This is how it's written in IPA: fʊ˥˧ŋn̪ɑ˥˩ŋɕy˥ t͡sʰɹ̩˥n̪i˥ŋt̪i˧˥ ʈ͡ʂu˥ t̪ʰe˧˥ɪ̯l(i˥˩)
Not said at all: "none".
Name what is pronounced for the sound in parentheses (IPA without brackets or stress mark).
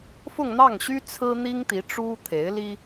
i˥